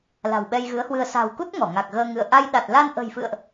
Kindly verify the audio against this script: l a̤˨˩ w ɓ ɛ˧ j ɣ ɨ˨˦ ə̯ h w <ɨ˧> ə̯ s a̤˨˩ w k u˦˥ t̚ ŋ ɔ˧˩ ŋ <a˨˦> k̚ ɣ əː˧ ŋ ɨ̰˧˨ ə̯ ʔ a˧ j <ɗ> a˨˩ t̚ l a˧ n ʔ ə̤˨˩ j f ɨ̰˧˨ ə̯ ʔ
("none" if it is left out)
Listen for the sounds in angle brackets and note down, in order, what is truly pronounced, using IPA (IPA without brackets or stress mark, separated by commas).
ɨ˧, a˨˩, ɗ